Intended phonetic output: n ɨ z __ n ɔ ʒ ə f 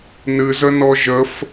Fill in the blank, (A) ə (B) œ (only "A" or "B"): A